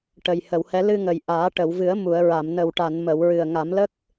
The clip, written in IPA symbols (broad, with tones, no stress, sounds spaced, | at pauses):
ʈ ə˨˩ j h ə˨˩˨ w h ɛ˧˥ l ɨ˧ ŋ ə˨˩ j ʔ aː˨˩˦ ʈ ə˨˩˨ w v ɨ˨˩˦ ə̯ m u˨˩˨ ə̯ ɹ a˨˩˨ m n ə˨˩ w ʈ a˨˩˨ n m ə˨˩˨ w ɹ ɨ˨˩ ə̯ ŋ a˨˩˦ m l ə˦˥ k̚